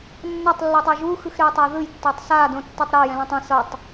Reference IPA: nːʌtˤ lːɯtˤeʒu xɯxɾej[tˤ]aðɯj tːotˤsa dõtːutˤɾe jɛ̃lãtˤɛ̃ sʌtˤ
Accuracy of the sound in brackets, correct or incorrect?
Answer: correct